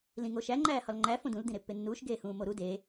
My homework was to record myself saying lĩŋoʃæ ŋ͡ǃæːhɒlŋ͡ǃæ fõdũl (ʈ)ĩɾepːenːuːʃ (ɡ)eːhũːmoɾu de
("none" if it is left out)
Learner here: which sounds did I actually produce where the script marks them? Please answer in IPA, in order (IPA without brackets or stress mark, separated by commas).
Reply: d, ɡ